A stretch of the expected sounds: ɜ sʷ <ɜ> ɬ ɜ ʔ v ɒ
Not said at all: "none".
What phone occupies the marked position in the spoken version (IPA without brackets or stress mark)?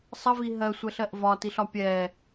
ɛ